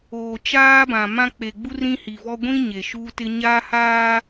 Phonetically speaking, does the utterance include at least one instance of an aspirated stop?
no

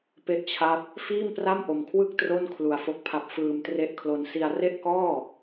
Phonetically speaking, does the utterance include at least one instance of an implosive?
no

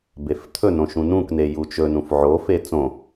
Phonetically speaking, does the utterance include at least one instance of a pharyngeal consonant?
yes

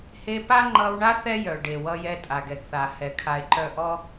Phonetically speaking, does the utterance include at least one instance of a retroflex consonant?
yes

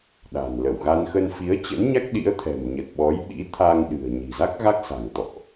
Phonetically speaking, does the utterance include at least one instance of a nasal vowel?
no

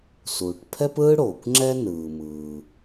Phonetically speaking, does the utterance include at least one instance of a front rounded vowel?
no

